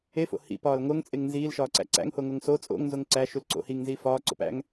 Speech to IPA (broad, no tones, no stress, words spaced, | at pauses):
efo̰ hḭ pɒːlŋoŋt͡sʼeŋ nziːlʃɒːǀæ̰ ǀæ̰ŋho ŋoŋso t͡sʼo̰ŋnzoŋ ǀæ ʃulǀo̰ hiŋnziː fɒː ǀo̰pæ̰ŋ